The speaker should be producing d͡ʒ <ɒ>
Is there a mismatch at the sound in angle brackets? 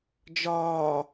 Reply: yes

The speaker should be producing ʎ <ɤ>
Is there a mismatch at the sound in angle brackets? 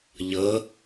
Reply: no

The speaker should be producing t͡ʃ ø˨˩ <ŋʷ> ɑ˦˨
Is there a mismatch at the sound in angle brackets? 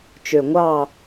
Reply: no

